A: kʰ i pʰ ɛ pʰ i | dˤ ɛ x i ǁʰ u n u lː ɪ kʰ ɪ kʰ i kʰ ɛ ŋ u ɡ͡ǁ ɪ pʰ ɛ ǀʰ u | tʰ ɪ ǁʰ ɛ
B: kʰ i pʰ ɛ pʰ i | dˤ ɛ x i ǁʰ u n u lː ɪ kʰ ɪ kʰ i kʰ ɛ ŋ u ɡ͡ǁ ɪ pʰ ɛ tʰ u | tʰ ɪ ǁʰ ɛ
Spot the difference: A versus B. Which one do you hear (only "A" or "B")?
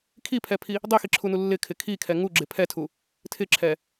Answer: B